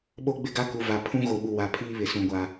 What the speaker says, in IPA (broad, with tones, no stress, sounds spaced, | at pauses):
ɓ o˦ ɡ͡b ɪ˦ ɡ a˦ k u˨ v a˨ pʰ ũ˦ ɣ o˨ ɓ u˨ w a˨ pʰ iː˦ β ɪ˨ s ũ˨ ɡʷ a˨